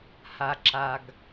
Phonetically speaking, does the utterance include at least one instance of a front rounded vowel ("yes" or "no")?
no